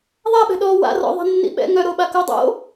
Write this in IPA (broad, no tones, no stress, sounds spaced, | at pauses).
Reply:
ðˤ a ɓ ɛ̤ ɗ ɔː w a̰ r ɔ̰ ðˤ ɛ̤ nː ḭ ɓ ɛ̰ ŋ œ ɾ o ɓ a k o dˤ o̰